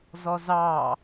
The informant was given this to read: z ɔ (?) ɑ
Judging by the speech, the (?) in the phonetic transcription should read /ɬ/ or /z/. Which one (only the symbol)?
z